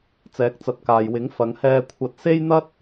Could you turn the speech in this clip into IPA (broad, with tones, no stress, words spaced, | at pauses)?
t͡sɛː˨˥k̚t͡sɐ˨t̚kaː˨jwɪ˨˥ŋ fɐ˨˧ŋhɛː˧kʷʰɐ˧t̚ se˥jn̪ɐ˥t̚